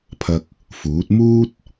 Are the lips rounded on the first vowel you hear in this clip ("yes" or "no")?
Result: no